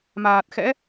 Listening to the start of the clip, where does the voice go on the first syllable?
low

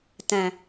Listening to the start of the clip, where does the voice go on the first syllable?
low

